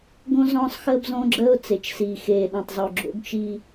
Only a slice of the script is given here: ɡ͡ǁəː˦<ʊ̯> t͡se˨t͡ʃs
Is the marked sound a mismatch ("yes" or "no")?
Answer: no